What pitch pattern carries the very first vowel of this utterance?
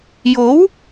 rising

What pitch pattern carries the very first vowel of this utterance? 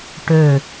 falling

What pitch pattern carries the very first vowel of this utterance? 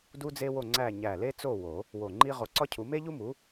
high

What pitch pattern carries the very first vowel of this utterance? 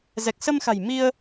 low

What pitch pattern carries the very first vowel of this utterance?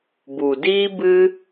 low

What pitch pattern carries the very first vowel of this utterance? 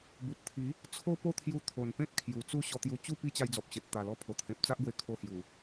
low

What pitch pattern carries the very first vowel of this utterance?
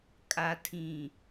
low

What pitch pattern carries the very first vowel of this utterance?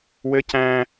high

